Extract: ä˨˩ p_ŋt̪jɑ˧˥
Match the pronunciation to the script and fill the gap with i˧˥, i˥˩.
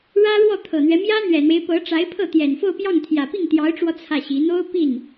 i˥˩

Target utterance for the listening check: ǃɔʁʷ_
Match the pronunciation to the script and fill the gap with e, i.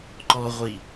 i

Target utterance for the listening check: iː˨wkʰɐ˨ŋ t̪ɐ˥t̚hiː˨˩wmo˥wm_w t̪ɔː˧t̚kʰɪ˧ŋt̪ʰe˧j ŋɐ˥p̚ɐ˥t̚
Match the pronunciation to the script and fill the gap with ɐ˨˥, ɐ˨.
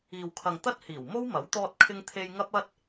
ɐ˨˥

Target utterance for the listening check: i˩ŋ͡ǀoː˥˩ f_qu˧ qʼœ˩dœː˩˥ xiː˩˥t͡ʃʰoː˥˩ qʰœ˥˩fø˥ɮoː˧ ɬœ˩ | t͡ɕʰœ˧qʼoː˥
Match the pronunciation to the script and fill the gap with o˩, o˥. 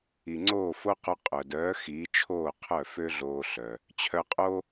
o˥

